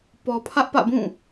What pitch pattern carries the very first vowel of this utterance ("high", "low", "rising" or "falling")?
low